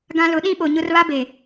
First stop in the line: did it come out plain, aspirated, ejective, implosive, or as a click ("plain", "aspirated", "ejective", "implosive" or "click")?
plain